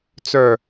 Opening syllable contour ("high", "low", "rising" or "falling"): falling